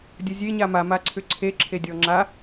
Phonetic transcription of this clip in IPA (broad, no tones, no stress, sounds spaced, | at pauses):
dʲ ə zʲ e ɲ a m a m a ǀʰ ʏ ǀʰ e ǁʰ e dʲ ɔ ŋ͡ǁ a